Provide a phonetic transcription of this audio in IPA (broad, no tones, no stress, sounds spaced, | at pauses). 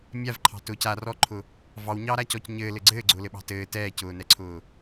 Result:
mʲ a v ǃʰ ɑ̤ t ʊː c a r ɔː ǃʰ ʊ | v ɑ w ɲ ɑː ɾ a c ɔ c ɲ ɘː l ɘ ɡ͡ǀ ɘː ɡ͡ǀ ʊː l ɘ ɓ ɑ̤ t ɘː t ɛː c ʊː n ɛ ǀʰ ʊː